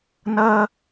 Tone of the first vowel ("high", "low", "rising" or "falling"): high